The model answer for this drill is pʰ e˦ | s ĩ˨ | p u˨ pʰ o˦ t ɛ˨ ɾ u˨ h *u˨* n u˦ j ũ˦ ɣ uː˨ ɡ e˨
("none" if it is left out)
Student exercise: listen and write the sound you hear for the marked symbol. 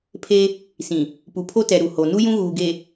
o˨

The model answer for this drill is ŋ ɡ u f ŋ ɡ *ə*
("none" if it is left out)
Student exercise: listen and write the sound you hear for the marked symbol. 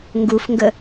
ə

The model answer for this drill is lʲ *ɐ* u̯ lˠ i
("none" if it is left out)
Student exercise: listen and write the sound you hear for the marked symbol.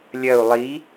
ɐ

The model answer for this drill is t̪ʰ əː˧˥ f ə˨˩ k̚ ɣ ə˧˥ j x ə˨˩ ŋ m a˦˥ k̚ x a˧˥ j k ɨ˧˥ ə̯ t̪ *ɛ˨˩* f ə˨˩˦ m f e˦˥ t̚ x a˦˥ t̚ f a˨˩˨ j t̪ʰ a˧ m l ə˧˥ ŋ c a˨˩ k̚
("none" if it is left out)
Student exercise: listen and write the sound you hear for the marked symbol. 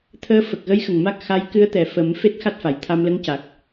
ɛ˨˩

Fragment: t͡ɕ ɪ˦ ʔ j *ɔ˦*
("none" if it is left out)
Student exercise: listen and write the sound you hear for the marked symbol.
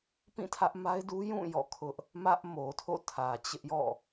ɔ̰˦˨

